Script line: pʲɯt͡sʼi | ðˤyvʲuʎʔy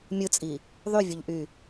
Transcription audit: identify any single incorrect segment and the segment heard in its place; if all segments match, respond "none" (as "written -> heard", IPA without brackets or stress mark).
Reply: pʲ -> mʲ